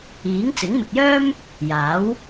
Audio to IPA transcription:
iː˨˥ ŋ t͡s ɪ˨˥ ŋ m ɪ˨ k̚ j œː˥ m | j aː˨˥ w

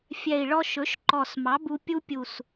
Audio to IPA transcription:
fʲ ɛ˨˩ i̯ ɭ ɔ˧ ʃ ɵ˩˥ ʃ ǃ ɔ˨˩ s m ɑ˩˥ b u˧ pʲ u˧ pʲ u˨˩ s

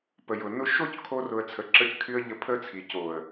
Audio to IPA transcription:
p ə˨ j ʊ˨ n ʊ˧ ʃ o˦ c kʰ o˧ r ʊ˨ ə̯ t͡sʰ ə˨ ǁ ə˧ c kʰ y˧ ə̯ ʎ ə˧ pʰ ə˦ t͡sʰ i˨ c o˨ ə̯

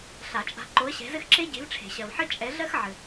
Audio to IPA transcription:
ɬ a˨˩˦ t͡ʃʼ a̤˨˦ ǃ o˨˦ ə̯ ɕ ɛ̤˨˦ z ɘ˦ x ǁ e˦ ɟ e̤˨˦ v ʈ͡ʂʰ e̤˨˩˦ ɕ ɜ˨ v ħ ɘ˦ t͡ʃʼ ɛ˨˦ ɮ ɜ˦ x ʕ ɘ˨

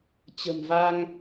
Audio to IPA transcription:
t͡ɕ ə̤˨˩ m v a˧ ŋ

